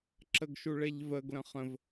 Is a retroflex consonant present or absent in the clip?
present